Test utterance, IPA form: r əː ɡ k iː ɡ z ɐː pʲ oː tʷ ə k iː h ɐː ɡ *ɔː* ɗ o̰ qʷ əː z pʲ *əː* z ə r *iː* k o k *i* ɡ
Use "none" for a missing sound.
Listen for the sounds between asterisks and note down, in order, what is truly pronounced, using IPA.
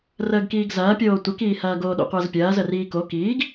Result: oː, ɐː, iː, iː

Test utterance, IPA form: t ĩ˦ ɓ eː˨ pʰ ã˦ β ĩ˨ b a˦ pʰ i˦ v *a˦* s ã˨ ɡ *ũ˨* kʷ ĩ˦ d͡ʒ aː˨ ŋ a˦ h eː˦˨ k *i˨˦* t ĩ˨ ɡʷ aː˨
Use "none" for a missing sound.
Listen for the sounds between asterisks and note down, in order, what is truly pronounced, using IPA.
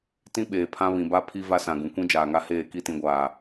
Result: a˦, ũ˨, i˦˨

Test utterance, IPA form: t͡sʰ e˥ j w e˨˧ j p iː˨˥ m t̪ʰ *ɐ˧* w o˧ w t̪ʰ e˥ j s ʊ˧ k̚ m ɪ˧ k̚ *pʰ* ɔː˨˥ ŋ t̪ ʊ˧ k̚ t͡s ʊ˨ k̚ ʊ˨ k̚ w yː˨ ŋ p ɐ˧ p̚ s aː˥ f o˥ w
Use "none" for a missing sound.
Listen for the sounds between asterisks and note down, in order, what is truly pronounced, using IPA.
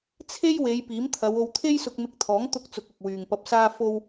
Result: ɐ˨˧, t̪ʰ

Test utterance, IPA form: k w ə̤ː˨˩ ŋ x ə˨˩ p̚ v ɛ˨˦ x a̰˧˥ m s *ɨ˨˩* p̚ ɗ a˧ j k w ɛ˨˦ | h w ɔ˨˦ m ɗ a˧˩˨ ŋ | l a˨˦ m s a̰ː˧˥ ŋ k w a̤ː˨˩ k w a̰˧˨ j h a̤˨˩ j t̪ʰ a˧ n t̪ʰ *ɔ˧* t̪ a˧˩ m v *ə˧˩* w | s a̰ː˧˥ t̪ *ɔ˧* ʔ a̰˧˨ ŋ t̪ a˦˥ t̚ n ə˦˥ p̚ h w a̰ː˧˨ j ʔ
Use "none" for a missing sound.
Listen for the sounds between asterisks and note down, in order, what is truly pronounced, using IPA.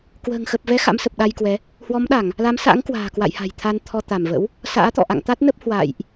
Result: ə˨˩, ɔ˧, ə̰˧˥, ɔ̰˧˨

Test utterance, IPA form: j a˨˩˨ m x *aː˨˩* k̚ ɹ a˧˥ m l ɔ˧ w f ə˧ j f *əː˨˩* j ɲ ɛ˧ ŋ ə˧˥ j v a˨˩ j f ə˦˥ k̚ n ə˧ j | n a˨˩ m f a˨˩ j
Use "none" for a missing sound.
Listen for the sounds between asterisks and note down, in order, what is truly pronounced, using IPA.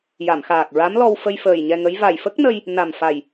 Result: aː˨˩, əː˨˩

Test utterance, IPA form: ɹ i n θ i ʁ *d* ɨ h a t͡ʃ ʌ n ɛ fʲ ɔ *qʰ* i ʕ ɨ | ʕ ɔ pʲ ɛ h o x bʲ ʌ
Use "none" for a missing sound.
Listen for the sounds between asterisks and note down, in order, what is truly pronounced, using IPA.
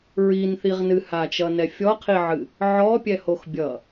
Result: n, qʰ

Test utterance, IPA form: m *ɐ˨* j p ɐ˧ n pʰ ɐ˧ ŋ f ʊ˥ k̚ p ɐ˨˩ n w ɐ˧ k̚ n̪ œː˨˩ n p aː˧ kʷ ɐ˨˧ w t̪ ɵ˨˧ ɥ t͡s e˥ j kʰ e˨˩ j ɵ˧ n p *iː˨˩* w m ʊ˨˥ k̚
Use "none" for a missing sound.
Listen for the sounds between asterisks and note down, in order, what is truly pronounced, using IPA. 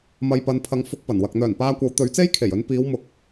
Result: ɐ˧, iː˨˧

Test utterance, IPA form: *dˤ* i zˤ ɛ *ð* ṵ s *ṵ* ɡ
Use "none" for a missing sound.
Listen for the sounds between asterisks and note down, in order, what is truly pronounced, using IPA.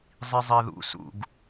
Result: zˤ, ð, ṵ

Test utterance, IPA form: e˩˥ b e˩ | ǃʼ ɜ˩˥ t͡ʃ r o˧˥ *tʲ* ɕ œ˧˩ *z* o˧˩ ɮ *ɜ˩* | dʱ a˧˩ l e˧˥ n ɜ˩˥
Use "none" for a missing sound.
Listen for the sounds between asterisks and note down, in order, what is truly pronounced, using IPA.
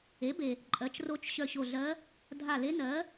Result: t͡ʃ, ɕ, ɜ˧˥

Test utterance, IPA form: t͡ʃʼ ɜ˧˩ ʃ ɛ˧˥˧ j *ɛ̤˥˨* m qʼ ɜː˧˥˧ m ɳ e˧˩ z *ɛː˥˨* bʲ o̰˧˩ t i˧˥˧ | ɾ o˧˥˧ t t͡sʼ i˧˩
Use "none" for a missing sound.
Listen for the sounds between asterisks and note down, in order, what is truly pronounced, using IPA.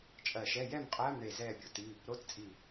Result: ɛ˥˨, ɛː˥˨

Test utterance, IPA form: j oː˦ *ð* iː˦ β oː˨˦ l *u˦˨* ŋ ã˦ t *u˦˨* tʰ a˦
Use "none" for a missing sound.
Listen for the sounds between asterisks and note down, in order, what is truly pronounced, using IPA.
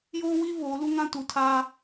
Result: w, u˦, u˨

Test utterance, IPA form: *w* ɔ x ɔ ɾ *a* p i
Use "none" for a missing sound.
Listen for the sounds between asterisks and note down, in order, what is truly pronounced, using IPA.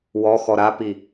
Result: w, a

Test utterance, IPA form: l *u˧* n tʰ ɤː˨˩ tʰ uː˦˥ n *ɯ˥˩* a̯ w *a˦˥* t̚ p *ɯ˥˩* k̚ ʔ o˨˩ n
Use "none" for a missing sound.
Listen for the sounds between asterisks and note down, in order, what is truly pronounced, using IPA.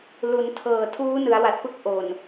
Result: u˩˦, ɯ˩˦, a˨˩, ɯ˥˩

